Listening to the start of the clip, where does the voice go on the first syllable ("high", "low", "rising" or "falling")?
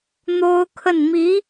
high